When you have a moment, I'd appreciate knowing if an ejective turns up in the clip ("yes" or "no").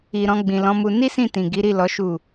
no